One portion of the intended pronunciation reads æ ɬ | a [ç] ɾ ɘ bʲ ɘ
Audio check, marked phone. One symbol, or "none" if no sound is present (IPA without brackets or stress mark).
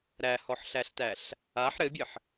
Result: ħ